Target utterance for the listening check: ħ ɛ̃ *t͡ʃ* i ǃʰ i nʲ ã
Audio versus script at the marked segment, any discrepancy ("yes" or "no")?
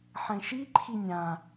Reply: yes